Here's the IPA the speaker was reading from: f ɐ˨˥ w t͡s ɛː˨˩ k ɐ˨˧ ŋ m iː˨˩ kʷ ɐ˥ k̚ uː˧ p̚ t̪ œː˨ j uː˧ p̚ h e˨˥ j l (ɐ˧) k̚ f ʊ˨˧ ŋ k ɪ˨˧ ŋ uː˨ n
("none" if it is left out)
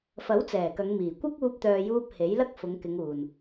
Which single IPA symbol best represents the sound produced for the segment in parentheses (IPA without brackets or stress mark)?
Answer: ɐ˥